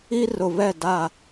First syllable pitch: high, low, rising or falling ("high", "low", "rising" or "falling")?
high